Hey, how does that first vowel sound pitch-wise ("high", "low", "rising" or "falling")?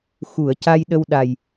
low